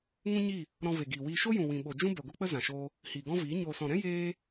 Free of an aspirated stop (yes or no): yes